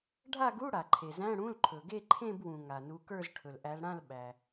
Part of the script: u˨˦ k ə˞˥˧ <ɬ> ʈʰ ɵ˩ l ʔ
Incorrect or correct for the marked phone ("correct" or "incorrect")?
incorrect